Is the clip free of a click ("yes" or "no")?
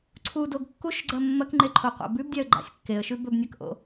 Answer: no